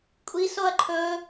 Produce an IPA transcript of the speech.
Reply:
kʷʼ i s o ɐ̯ ǃʰ ɵ

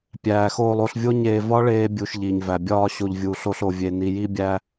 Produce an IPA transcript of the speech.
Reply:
pʲ æː˨ x oː˧ lˠ o˧ ɬ vʲ o˦ ɲ eː˧ v ɒ˦ ɭ eː˧ bʲ u˧ ʃ ʎ i˨ ɲ v æ˨ bʲ ɒː˧ ɕ o˨ ʎ vʲ u˨ ɬ o˧ ɬ o˨ vʲ e˨ n i˨ j i˦ bʲ æ˦

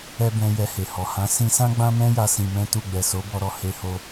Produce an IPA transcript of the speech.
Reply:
ɛ˧ b ɛ̃˧ j ɛ˧ h e˨ h ɔ˨ h ã˨˦ s ĩ˧ s ã˦ ɡ͡b ã˦ m ɛ̃˦ j a˧ s ĩ˧ m ɛ̃˦ t u˦˨ ɡ͡b ɛ˨ s o˨˦ b ɔ˧ ɾ ɔ˨ h e˧ h o˧

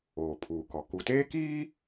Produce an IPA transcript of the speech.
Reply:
oː˨ pʰ uː˨ k ɔ˨ k u˨ t eː˦ k iː˦

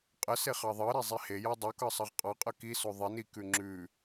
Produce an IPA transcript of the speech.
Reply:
qʼ ə s e χ ɑ ðˤ ɤ ɾ e zˤ i h e j ɑ dˤ o k ɤ sˤ ʌ ʁ qʼ ɑ qʼ ɤ k i s o ðˤ i n i k ʉ ŋ͡ǁ ʉ

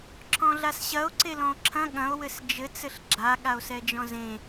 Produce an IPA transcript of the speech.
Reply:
ǁʰ ɔ̃ ɮ a s ɕ ɐ o̯ ǀ e l ɔ̃ o̯ ǁʰ ɐ̃ ɠ ɐ̃ o̯ w ɘ s d͡ʒ ɘ t͡s ɘ ɬ ɡ͡ǁ a ɠ a o̯ s ɛ d͡ʒ ɔ̃ z ẽ

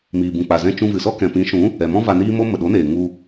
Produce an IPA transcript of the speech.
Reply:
m iː˨ b ũ˨ k͡p a˨ z ɛ̃˧ t͡ʃ ũ˧ v ɨ˨ s ɔ˦ k ɛ̃˨ p ĩ˨˦ ʃ ũ˨˦ | ɛ˨ m ɔ̃˦ v a˧ n iː˦ m o˦ m ə˨ ɗ o˨˦ n eː˨ ŋ u˧

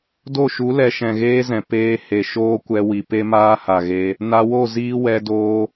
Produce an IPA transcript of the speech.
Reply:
d o˦˨ ʃ u˨˦ l ɛ˧ ʃ ɛ̃˨ ɣ eː˦ z ɛ̃˨ p eː˧ h e˨ ʃ oː˦ kʷ ɛ˧ w i˨ p e˦ m aː˦ h a˨ ɣ e˧ | n a˧ w o˦˨ z iː˧ w ɛ˧ d oː˧

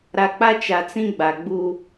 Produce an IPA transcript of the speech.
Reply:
ɾ a˨ k͡p a˦ t͡ʃ a˨ t͡s ĩ˦ ɡ͡b a˨ ɡ͡b u˦

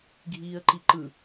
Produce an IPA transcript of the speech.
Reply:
ɡʱ iː ə̯ ǃ i ǃ ɯ

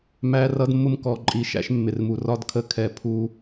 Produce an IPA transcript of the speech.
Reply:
m æ˦ r ʌ˦ d mː ʊ˦ m k ɔ˨ ǃʼ i˨ ʃ æ̰˦ ʃ mː ɪ˨ r m u˨ r ɒ˦ d kʰ ə˦ kʰ ɛ˨ pʰ u˦

